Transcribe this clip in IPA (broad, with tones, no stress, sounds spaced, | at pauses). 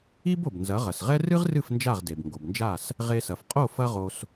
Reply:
i˥ b o˩ b n z ɐ˩˥ ʁ ɐ˩ s ʁ ɛ˥ r ɨ˥ ʁ r ɨ˥˩ f n d͡ʒ a˥˩ ʁ d e˩ b ŋ ɡ o˩ b n d͡ʒ a˥˩ s | ʁ e˧ s ɐ˩ f qʼ o˥˩ f ɐ˥ ʁ o˧ s